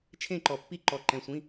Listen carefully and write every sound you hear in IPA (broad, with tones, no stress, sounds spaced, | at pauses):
t͡ʃʰ ẽ˥˧ ǃ ɔ˧ pː i˥˧ ǃ ɔ˧ ǃ ɛ̃˧ sʷ ĩ˧˥˧